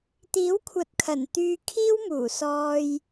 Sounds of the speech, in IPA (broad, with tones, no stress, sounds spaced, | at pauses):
t̪ iː˨˥ w kʷʰ ɐ˨ t̚ kʰ ɐ˨˩ n t̪ yː˧ kʰ iː˥ w m uː˨˩ s ɔː˧ j